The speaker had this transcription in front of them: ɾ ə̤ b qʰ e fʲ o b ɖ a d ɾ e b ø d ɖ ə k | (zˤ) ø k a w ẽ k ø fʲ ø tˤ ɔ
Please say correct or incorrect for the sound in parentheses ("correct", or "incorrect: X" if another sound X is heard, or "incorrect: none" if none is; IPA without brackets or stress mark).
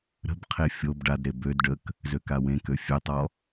incorrect: z